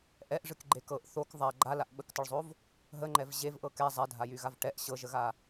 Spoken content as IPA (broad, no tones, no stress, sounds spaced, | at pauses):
ʔ ɛ ʔ ʐ ɨ k ɡ͡ǃ e k ɤ ʔ θ o k ðˤ a ɡ͡ǃ a l a ʔ ɓ ə k t ə ɭ zˤ o v | ɦ ə ŋ͡ǃ ɛ v ʑ e v ʔ ɤ k ɛ zˤ ɛ dʱ a j y ɣ a v ʈ ɛ ʔ ɕ ɤ ʒ ə ɣ a